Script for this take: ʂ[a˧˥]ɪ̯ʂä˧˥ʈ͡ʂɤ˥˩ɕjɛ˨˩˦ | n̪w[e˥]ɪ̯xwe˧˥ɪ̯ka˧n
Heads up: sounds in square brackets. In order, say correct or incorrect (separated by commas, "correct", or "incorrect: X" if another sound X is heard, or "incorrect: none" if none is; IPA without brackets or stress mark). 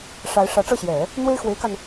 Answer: correct, correct